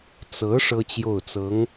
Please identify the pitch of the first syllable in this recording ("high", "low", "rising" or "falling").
rising